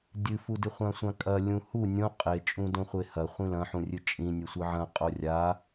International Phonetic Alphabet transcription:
dʲɨfudɨ χʷãsʷãkʼɐ lʲũhu nʲõ qʼe t͡ʃʼũdõχʷehɐ χʷĩlɐ̃ħũrʲɨ t͡ʃʼĩ nʲɨsʷɨʕɐ̃ qʼorʲa

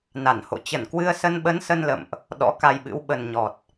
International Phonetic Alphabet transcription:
na˧˩nho̰˧˨ t͡ɕə˧˩nkwɨ˧ə̯sə˧n ɓə˨˦nsə˧nlə̰˧˨mʔ | ɗɔ̰˧˥ka˧jɓɨ̰˧˥w ɓə˨˩nɲɔ˨˩t̚

